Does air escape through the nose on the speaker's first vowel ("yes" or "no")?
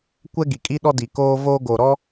no